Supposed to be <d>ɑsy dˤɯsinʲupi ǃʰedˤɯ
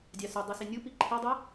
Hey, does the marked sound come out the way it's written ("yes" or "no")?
no